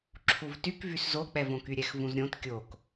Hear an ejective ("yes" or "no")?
no